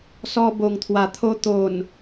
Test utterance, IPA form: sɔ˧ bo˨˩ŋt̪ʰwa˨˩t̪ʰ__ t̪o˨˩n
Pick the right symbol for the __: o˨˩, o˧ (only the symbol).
o˧